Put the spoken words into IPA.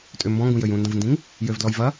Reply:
tʼ ʏ m b ɔ̃ ŋ ɡ ũ j ø j ũ n d ɐ̃ v n d ĩ ŋ | j ø v d l ɔ j v ɐ

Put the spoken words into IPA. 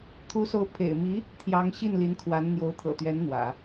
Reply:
t̪ʰ u˧˥ s o˧˥ ʊ̯ pʰ ḛ˨˩ ɪ̯ m i˧˥ | t̪ʰ j ɑ˧˥ ŋ ɕ i˥˩ n l i˧˥ n kʰ w a˧˥ n n̪ j o˧˥ ʊ̯ t̪ʰ ɤ̰˨˩ t̪ ɥ ɛ˧˥ n n̪ w ä̰˨˩˦

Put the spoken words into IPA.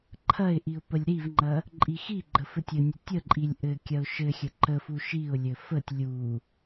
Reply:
ǃʰ ɐ ɪ̯ ʔ i ʊ̯ p ə lʲ ɾ i v ŋ͡ǃ ɐ | ǃʼ i x i ɡ͡ǃ ə f ɘ tʲ ɘ nʲ ə tʲ ə ǃʼ i lʲ ʔ ɘ kʲ ɐ ʊ̯ ʃ ɘ xʲ ə ǃ ə f u ʃ i ʊ̯ lʲ ɘ f ə tʲ lʲ u

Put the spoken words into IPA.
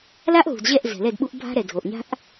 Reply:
l a˦ ʔ ɦ ṳ˨ d ʑ ɛ˦˨ ʔ z ɛ̤˨ l ɛ˦˨ d ɓ u˦ ʔ bʱ a̤˦ ɾ ɛ˨ dʱ o˨ ʔ ɲ a̤˦ ʔ

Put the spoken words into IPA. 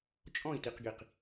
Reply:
t͡ʃʼ ɔ̃ i̯ t i q ɡ i q

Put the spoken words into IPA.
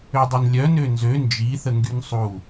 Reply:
ø dˤ ø n lʲ œ n ø n z ø n d͡ʒ i θ ə ŋ ɡ y n sˤ u

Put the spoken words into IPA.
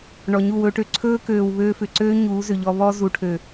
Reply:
ɳ ɔ˨ ɲ u˦˨ w ɵː˧ ʈ ø˧ ǀʰ ɵː˦ k øː˨ w β øː˧ f ʏ˨ ǀ øː˦ ɲ uː˨˦ z ʏ˨ ʎ ɔ˧ β ɔ˦ z u˨ ʈʰ ø˨

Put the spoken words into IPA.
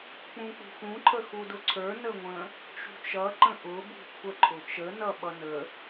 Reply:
k͡p ũ k͡p ṳ x ũ ǃʰ ə x u d ʊ ǀʰ ə˞ n ə ŋʷ ə̃ | t͡ʃ ṳ t͡ʃ ʌ ǃ ə̃ ʔ ʊ b ṳ kʷʰ ə ǃʰ ʊ t͡ʃ ə n ʌ ɓ ʌ n ə

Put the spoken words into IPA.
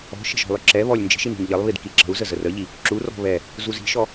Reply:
ɔ̤ ʃ ə̤ ʒ ɔ̤ lˠ ʏ ǁ ɛ β ɔ lʲ n d͡ʒ i̤ ʃ i n i̤ n ʎ ə lˠ β i d k i ǁ ə̤ u̯ z ə z ə r ə ʎ i | ǁ u r ɔ̤ β ɛ | z u z i̤ ʃ ɔ

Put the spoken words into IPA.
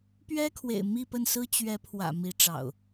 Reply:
p ɥ ɛ˦ kʰ w ḛ˨˩ ɪ̯ m i˥˨ p ə˥˨ n s ɹ̩˦ t͡ɕ ɥ ɛ˨˦ pʰ w ä̰˨˩ m i˨˦ ʈ͡ʂ ɑ̰˨˩ ʊ̯

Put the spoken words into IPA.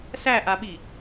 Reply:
s æ ʔ a ɓ i

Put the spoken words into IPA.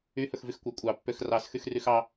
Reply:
y h ɵ x v y x kʷ ɑ kʷʼ ɑ pː ø x r ɑ s x y x r y x ɑ

